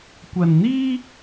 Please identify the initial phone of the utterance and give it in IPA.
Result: kʷ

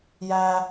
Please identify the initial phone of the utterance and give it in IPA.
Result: j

